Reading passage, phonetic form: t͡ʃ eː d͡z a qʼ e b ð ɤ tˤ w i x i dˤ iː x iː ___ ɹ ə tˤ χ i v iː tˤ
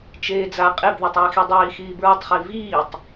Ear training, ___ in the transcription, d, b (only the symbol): b